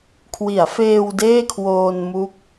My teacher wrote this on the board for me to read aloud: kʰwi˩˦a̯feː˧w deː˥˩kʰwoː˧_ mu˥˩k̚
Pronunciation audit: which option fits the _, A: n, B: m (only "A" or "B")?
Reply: A